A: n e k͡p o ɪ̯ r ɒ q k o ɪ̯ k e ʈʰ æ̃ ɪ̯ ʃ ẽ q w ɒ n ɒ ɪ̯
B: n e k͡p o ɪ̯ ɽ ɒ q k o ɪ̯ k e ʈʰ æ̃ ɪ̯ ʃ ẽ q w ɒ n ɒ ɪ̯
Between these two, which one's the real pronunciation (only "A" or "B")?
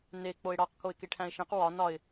B